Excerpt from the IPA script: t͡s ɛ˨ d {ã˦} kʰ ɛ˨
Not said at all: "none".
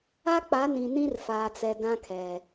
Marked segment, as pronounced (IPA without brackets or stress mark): ã˦